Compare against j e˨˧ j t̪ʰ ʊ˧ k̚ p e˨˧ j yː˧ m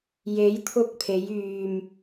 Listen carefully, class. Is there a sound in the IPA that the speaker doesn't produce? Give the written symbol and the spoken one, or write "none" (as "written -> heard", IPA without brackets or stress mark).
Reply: p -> pʰ